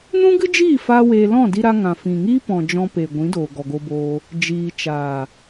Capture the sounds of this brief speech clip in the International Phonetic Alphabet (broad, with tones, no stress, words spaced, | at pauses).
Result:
nũ˦ɡɨ˦d͡ʒiː˦˨ faː˦weː˧ lɔ̃˦˨di˧ɾa˧ ŋã˨ fĩ˨ŋiː˦pɔ̃˨ d͡ʒɔ̃˧pe˨ɡʷĩ˨˦ doː˨ɡɔ˨ɡo˧boː˧ | d͡ʒiː˨t͡ʃaː˨